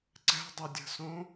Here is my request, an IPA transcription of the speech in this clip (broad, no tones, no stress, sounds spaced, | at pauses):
ǀ ɛ̤ dˤ ʏ dʲ ə̤ s õ